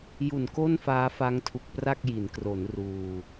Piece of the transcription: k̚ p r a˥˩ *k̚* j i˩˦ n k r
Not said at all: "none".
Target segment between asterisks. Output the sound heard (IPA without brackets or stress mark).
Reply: k̚